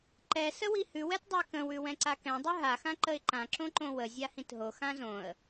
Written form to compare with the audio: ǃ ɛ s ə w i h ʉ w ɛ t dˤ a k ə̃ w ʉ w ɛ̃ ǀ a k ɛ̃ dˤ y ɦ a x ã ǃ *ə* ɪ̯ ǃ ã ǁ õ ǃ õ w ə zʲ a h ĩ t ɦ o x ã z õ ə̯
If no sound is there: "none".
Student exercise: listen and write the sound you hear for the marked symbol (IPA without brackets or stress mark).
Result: ə